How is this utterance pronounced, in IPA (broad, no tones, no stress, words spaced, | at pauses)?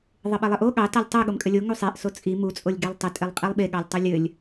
ðˤɘɓelˠɘʔo ɠɑ tɑlʲtˤɯ ɠomkʼɘlʲo ŋusˤeʔ sot͡sʼi mu t͡sʼolʲɡelˠtˤɘ tʼelˠqʼilˠɓe ɠɑlʲtˤolʲɘlʲ